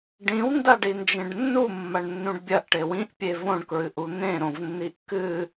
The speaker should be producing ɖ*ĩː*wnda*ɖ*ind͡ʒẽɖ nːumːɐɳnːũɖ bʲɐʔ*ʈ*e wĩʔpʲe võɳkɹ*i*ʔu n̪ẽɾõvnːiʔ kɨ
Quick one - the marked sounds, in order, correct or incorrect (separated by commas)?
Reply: incorrect, correct, correct, incorrect